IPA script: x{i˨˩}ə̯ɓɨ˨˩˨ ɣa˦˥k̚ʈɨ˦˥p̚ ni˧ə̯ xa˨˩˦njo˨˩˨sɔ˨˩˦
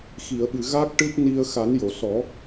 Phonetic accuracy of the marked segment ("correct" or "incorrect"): incorrect